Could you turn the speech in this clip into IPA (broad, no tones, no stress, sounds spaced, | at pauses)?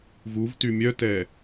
v u v t y mʲ œ t ɛ